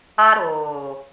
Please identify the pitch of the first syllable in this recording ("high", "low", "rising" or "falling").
high